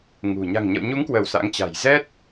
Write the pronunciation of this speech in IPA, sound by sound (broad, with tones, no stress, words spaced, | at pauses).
ŋṳ˨˩ ɲa̤˨˩ŋɲə̰˧˨wɲu˨˦ŋkwəː˧˩w sa̰˧˥ŋt͡ɕa̤˨˩j zɛ˦˥t̚